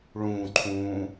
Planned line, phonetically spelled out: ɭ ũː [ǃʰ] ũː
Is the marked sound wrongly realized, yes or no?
no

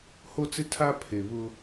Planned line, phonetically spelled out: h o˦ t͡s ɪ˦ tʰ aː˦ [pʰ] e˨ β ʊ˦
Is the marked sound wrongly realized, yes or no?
no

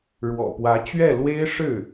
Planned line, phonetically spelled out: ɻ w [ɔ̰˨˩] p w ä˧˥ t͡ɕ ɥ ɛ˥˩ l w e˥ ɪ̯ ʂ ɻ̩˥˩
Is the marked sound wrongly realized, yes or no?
no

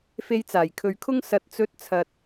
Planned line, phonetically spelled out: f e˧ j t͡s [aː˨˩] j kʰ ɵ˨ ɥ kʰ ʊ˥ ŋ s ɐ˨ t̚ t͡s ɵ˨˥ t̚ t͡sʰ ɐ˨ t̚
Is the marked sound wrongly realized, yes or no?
no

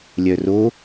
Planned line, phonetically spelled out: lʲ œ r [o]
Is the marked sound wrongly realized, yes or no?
no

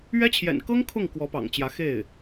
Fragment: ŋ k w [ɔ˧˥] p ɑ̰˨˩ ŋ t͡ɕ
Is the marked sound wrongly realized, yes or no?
no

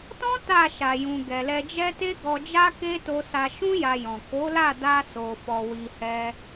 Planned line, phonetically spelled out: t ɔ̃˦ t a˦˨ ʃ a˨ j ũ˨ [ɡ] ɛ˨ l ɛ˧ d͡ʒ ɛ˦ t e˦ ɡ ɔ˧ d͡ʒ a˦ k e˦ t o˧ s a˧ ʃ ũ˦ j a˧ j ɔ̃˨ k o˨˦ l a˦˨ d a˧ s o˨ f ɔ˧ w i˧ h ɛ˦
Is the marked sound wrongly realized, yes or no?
no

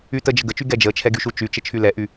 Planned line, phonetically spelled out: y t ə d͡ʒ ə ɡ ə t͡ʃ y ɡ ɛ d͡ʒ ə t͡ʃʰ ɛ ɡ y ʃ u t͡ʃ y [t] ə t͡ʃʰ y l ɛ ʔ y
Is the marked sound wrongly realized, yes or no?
yes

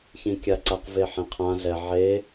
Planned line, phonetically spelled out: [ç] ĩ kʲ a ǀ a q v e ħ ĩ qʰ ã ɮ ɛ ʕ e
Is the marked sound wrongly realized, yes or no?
no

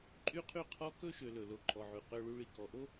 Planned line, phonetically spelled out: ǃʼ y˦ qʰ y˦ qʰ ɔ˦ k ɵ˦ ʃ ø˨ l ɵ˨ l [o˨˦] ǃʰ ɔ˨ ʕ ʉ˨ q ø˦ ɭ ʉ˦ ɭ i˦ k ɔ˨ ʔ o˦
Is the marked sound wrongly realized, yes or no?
yes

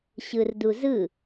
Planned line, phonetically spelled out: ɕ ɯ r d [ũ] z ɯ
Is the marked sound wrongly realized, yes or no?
yes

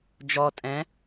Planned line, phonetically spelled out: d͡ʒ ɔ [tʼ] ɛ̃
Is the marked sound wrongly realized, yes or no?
no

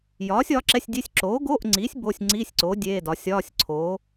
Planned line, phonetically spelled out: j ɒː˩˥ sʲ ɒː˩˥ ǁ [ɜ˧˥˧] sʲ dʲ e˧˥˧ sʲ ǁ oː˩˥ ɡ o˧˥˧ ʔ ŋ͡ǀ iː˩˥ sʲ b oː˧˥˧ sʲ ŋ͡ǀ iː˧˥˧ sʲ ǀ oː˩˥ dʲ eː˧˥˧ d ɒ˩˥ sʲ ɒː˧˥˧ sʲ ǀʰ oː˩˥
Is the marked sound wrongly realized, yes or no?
yes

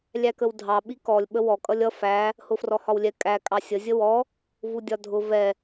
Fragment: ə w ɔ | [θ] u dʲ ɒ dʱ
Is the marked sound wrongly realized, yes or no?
yes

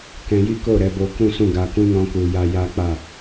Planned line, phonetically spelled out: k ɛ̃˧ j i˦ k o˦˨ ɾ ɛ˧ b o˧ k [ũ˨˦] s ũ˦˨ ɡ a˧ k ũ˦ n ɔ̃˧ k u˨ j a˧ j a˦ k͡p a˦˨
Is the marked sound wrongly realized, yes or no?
yes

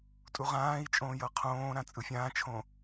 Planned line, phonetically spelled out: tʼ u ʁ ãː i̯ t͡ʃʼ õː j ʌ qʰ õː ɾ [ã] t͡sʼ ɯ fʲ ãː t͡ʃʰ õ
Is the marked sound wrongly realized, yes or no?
no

